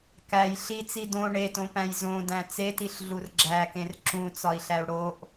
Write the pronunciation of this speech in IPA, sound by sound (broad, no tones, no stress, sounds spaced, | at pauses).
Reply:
k æ j ɬ i t͡s i d õ ɳ e t õ p æ̃ j z õ d æ̃ t͡s e t i ɬ ɮ u r ɡ͡ǁ æ k ẽ r ǁ ũ t͡s ɒ i̯ ɬ æ u̯ ɽ o ʔ